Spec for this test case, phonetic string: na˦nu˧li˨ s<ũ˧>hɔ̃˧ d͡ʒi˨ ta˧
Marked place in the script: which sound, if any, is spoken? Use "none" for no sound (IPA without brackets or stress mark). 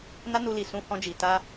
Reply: ũ˧